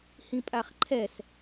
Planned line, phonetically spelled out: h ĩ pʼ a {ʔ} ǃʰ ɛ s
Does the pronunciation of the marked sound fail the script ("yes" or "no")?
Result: yes